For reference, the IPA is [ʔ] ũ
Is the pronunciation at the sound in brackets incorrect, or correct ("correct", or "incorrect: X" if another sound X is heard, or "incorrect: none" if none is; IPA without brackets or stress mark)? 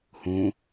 incorrect: h